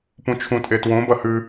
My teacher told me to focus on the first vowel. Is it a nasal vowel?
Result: yes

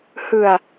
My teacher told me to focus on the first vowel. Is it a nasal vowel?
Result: no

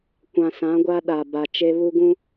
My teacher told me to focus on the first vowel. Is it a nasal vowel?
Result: yes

